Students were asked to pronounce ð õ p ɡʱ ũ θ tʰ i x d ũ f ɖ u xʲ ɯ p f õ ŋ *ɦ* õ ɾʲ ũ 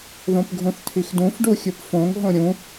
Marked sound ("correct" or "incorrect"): correct